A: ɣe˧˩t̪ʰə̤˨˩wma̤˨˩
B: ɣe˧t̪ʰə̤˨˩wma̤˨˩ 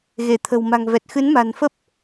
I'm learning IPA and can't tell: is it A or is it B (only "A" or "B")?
A